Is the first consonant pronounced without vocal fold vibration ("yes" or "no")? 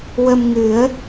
no